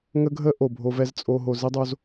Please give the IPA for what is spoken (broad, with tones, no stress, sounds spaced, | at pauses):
ŋ ə˦ ɡʱ ə˦ ʔ o˨ bʱ o˦ v ɛ˦ z t͡sʼ o˨ ɦ o˨ z i˦ dˤ o˦ z